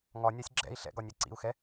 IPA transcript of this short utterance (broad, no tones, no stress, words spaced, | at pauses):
ŋɒ nʲasʲɡ͡ǁɛ̰i̯ ɬɛ̰ɡɒnʲɛ ǀḭu̯xɛ